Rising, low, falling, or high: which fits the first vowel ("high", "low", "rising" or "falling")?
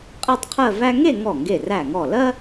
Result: falling